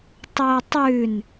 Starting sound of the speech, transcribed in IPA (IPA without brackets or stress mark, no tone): tˤ